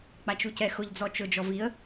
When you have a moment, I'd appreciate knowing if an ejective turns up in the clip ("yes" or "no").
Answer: no